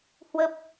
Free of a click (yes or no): yes